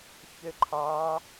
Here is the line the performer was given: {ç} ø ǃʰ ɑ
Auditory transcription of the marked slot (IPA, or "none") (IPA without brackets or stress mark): ç